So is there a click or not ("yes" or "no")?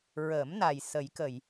no